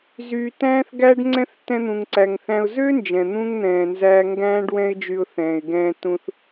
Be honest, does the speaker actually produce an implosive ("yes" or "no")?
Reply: no